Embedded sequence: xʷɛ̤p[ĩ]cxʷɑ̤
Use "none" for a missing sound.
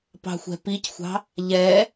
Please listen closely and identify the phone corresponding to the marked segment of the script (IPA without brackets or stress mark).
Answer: i